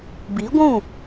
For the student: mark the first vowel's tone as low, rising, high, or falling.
rising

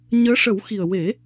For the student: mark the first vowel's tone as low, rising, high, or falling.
rising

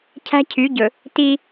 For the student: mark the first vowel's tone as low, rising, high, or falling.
high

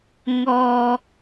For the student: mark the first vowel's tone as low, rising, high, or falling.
low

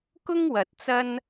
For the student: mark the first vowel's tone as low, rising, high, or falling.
high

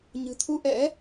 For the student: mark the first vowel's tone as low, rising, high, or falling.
low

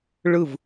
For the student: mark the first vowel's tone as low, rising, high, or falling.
falling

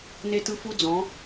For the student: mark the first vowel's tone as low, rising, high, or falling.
high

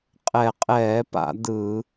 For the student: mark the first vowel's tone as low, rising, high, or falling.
low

